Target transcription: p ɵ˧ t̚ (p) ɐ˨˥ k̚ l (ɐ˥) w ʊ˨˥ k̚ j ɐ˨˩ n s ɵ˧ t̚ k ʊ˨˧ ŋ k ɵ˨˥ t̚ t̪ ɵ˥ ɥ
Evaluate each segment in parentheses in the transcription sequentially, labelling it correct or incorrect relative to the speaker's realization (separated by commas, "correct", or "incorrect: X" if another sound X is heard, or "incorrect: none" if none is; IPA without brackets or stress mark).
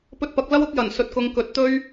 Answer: correct, correct